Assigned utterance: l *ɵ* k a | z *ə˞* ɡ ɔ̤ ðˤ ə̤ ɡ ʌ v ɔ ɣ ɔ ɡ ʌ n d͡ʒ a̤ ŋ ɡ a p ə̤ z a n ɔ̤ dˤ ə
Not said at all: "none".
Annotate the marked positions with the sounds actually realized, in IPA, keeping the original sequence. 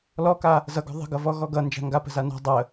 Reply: ɔ, ʌ

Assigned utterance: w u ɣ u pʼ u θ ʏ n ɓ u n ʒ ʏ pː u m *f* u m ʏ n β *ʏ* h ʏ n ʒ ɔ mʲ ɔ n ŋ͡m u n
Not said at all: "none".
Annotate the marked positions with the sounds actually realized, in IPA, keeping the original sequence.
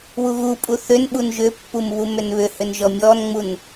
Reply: β, ʏ

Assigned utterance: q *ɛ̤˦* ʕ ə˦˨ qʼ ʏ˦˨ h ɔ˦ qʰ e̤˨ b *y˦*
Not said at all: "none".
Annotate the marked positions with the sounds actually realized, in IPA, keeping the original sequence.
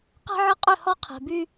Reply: ɛ̤˦, y˦

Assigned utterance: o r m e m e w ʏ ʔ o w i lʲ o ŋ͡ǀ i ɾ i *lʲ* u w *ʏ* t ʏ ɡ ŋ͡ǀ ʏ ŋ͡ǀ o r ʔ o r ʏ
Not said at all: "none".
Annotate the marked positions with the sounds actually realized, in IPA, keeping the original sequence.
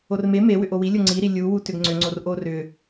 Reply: lʲ, u

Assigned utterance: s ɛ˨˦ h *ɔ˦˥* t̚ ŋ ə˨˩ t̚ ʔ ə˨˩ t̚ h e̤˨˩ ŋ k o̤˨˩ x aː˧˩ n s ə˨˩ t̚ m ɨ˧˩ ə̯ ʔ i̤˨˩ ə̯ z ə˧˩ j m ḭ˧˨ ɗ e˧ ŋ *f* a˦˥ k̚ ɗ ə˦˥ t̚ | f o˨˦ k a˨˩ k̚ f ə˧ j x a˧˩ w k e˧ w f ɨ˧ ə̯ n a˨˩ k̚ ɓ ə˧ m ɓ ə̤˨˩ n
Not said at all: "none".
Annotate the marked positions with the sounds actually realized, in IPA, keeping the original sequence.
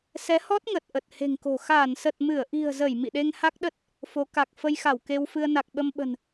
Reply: ɔ˦˥, h

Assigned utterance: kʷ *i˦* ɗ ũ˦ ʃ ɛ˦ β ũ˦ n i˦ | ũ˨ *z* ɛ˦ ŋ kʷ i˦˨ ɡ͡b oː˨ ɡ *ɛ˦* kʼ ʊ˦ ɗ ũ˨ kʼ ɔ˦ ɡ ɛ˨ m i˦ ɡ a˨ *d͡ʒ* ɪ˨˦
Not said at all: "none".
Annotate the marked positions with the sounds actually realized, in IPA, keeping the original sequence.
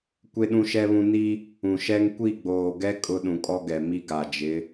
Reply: e˦, ʃ, ɛ˦, d͡ʒ

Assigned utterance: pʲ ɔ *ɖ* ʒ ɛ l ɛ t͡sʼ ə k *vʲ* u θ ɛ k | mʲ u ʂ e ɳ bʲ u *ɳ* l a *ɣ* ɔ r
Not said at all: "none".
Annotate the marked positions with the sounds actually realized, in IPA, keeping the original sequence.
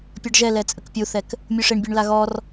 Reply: ɖ, pʲ, ɳ, ɣ

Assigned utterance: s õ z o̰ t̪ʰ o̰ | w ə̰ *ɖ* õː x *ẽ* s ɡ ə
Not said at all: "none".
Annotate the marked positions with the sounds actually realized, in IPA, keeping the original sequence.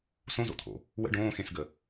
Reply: ɖ, ẽ

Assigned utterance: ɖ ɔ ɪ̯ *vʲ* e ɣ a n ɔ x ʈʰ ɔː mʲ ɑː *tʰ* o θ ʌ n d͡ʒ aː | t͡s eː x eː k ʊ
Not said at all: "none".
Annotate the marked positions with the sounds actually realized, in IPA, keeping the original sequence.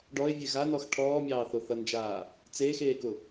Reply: vʲ, θ

